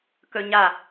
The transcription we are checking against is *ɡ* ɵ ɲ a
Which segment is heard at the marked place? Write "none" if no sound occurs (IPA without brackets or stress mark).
k